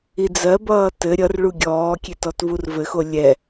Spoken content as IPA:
i d͡z ɜ b ʌː t ɘ ɾʲ ʌ r ɭ u ɡʲ ɔː kʲ e t ɔ t v u r v ɘ x o lʲ ɛ

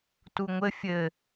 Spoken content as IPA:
t u ŋʷ ɘ fʲ ɘ

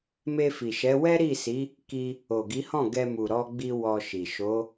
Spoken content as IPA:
m e˧ f i˨ ʃ ɛ˨˦ w ɛ˦ ɾ i˦˨ s i˨˦ | k i˧ | o˨ ɡ i˨˦ h ɔ̃˦˨ ɡ ɛ˧ m u˨ ɾ ɔ˧ ɡ͡b i˧ w ɔ˧ ʃ i˨ ʃ o˨˦

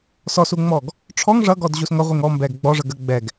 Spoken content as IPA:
s ɔ s u ŋ͡m ɔ ɡ | ʈ͡ʂʰ ɔ ŋ ʐ ʌ ɡ ɔ d ʑ u s ŋ ʌ ʁʷ i ŋ ɔ m b ɛ ɡ ɡ͡b ɔ ʐ ə ɡ ə ɡ͡b ɛ ɡ

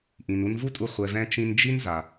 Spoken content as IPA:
ʔ ĩ˨ n u˧ n v u˦ tʼ u˧ χʷ ɛ˨ v ɛ̃˧ t͡ʃ ĩ˧ n d͡ʒ i˦ n z a˨

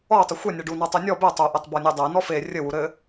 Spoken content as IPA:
ɔ o̯ tˤ ɘ xʷ ɛ nʲ ɛ ɖ u n ɔ tˤ e nʲ ɔ b e tˤ o ʔ ɘ tˤ b ɔ nʲ e dˤ ɛ n ɔ f e rʲ ɘ w u ɾ ɘ

